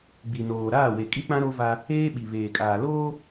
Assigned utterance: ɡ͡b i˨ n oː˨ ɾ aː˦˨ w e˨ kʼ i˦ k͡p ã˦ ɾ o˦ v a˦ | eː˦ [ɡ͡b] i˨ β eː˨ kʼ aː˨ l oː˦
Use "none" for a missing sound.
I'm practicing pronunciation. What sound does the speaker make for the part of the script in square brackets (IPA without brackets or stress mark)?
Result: ɓ